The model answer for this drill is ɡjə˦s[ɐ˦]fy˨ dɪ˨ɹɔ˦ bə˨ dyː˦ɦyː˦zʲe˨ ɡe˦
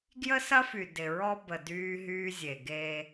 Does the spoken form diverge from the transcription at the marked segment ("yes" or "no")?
no